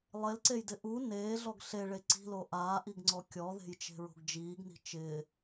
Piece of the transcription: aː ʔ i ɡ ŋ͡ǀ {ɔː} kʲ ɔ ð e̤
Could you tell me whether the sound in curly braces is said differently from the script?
yes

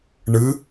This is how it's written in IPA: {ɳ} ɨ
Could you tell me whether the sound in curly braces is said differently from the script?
no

